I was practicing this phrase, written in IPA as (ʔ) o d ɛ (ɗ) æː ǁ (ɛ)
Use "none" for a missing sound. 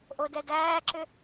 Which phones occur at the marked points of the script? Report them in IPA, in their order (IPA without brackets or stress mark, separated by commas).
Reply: ʔ, d, ʏ